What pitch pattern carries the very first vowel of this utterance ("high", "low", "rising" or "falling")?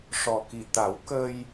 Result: low